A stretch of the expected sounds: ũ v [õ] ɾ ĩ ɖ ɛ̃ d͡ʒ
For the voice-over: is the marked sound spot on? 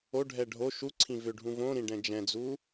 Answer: yes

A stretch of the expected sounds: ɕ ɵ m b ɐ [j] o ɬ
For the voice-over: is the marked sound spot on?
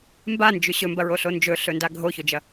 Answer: no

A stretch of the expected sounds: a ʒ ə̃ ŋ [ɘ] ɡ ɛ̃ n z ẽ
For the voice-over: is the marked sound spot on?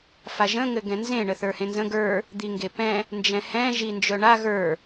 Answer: yes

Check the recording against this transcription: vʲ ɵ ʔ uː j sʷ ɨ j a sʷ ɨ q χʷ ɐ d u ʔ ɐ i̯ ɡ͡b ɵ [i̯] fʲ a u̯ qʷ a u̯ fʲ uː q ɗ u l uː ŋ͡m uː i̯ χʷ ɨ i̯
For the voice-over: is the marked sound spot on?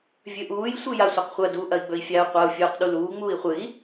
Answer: yes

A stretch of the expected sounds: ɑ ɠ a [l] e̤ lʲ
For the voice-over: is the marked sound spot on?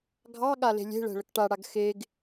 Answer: yes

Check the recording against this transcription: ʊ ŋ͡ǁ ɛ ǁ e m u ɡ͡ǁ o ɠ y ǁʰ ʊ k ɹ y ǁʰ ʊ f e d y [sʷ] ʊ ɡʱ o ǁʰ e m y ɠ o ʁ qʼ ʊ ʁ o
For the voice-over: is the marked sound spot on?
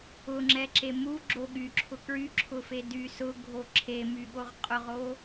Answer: no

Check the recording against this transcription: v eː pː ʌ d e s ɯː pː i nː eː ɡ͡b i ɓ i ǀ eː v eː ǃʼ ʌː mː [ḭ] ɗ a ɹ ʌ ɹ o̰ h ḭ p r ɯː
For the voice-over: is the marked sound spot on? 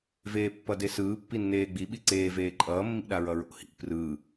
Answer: yes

